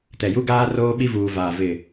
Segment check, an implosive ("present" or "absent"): present